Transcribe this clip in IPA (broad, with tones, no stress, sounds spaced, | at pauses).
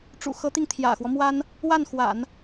ʈ͡ʂ ṵ˨˩ x ɤ˧˥ t̪ i˧ ŋ t̪ʰ j ä̰˨˩ x w ɔ˦ m w a˥ n | w a˥˩ n x w a̰˨˩˦ n